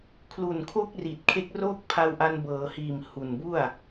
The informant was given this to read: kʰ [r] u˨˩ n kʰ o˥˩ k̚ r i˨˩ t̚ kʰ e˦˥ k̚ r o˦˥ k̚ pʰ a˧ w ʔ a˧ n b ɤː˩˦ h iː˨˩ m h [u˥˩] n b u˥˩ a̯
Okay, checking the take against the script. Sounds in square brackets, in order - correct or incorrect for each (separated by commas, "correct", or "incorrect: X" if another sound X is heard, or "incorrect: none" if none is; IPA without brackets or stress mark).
incorrect: l, incorrect: u˨˩